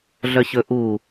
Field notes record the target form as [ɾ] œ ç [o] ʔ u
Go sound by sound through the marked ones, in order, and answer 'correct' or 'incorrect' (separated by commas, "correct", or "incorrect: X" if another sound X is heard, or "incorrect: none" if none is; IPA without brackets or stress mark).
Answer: incorrect: ɮ, incorrect: ɵ